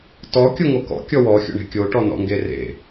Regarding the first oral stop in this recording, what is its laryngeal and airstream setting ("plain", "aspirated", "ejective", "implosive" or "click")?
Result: plain